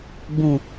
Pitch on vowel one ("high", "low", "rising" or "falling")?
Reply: low